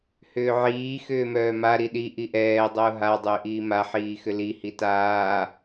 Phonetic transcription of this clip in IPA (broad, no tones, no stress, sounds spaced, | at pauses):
h ʏː ʕ iː x ʏː m œː m a ɾ i ɗ i ʔ i ʔ ɛː dˤ ʊː ɦ a dˤ ʏː ʔ iː m a ħ iː x ʏ l i h i t aː